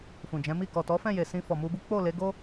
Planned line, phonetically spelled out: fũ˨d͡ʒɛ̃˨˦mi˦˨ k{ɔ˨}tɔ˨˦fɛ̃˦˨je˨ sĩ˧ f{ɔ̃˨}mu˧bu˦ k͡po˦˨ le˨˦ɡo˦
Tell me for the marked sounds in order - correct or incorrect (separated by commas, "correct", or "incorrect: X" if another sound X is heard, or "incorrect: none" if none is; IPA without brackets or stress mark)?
correct, incorrect: ɔ˨